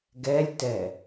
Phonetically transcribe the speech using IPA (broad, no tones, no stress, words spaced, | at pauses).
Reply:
ɡɛlʲtɛ